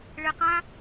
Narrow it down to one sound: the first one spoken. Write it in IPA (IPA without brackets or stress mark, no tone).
ɭ